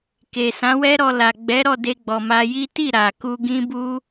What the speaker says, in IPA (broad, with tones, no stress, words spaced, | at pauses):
ke˨sã˨˦wɛ˦ɾɔ˧ la˨ ɡ͡bɛ˨˦ɾɔ˦˨ de˧ɡ͡bɔ˨ma˧ji˦ ti˦˨ɾa˨ku˧ ɡĩ˦bu˦